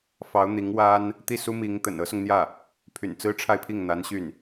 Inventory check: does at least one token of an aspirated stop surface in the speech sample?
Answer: yes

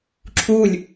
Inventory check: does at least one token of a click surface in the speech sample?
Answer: yes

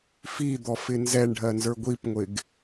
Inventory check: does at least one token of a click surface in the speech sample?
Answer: no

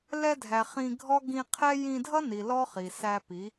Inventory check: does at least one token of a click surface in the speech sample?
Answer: no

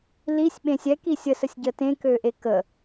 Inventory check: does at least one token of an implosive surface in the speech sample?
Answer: yes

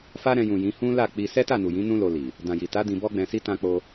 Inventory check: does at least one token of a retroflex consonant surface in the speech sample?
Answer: no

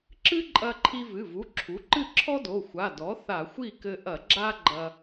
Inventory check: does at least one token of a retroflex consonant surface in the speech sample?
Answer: no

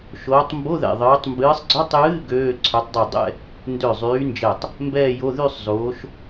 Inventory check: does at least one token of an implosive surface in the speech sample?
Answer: no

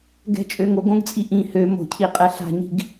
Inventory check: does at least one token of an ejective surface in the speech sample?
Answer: yes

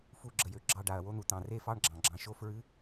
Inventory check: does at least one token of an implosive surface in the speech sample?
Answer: no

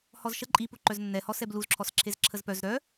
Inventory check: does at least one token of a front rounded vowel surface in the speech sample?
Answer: yes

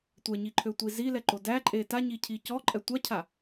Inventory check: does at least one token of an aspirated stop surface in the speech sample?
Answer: yes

